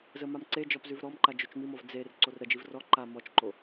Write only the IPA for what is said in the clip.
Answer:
z ə m a m ǀ e d͡ʒ ɔ p z ʉ v ɾ ɔ m ǃ a d͡ʒ o t͡ʃ m i m ɔ v d͡z e r ǀ o r ɾ ə d͡ʒ i v r ɔ ǃ a m ɔ t͡ʃ ǃ o

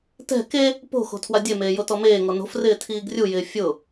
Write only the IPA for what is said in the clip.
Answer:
t ɛ̤ k e | p o̤ x o̤ tʰ w a dʲ e m eː j o t ɔ m eː ŋ ɔ n o̤ f r ɪː tʰ iː ɡ rʲ u j ɪː fʲ ʊ

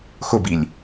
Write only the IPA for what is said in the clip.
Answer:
x ʊ b i lʲ

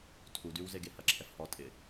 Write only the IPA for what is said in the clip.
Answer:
tʰ u d y w z e ɡ e h ɐ ǁʰ ɛ f h ɔ tʼ ɪ

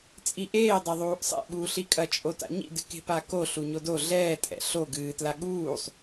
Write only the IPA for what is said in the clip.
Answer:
t͡sʼ i ʔ eː dˤ ɐ ðˤ uː ʔ sˤ ḛ ɓ uː ɬ i kʼ ɐ t͡ʃʼ o t a̰ ɲ ḭ d ɨ k e̤ p a k o ɬ u ɲ o d o ɮ ɛː tʼ ɛ̰ ɬ o ɡ ɨː t l a ɠ uː sˤ

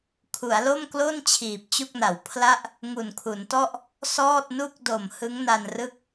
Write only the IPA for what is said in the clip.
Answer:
kʰ u˩˦ a̯ l o˥˩ m k l o˥˩ n t͡ɕʰ iː˨˩ p̚ t͡ɕ u˥˩ k̚ n a˩˦ w pʰ l a˥˩ ʔ | ŋ u˨˩ n kʰ u˩˦ n t ɔ˥˩ ʔ | s ɔː˥˩ t̚ n u˥˩ k̚ d o˨˩ m h ɯ˦˥ ŋ n a˧ n r ɯ˥˩ k̚

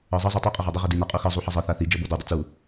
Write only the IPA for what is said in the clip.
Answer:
ɤ zˤ ʌ zˤ i tˤ ʌ qʼ ə ʁ a dˤ ə ʁ i d i n a qʼ u x ɤ zˤ u ħ ʌ zˤ ɤ θ a θ i d͡ʒ ɤ b ɤ d u dˤ ə t͡s u

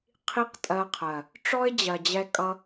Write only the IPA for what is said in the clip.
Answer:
qʰ i˦ q tʼ ɜ˧ qʰ ɜ˨ | ʈ͡ʂ ɔ˦ ɪ̯ d͡ʑ ɜ˨ d͡ʑ ɛ˧ kʼ ʌ˧

